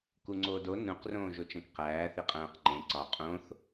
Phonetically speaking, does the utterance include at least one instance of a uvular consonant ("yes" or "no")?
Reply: yes